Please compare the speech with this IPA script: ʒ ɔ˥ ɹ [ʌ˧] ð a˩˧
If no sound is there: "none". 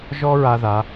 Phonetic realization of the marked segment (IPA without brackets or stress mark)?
a˧